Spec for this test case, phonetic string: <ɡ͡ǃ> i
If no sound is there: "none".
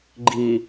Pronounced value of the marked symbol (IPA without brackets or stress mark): ɡ͡ǃ